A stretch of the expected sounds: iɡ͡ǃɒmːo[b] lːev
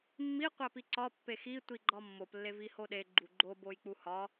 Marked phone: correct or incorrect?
incorrect